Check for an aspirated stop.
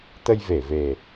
absent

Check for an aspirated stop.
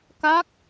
absent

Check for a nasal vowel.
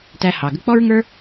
absent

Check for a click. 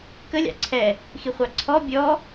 present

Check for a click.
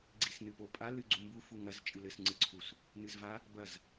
present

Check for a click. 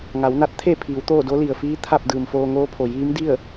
absent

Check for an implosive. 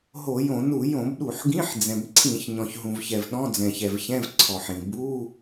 present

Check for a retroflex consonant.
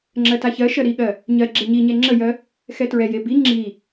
absent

